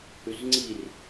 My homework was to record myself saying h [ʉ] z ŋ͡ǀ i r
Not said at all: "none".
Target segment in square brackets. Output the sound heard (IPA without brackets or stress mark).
ʉ